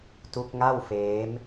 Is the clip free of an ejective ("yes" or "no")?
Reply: yes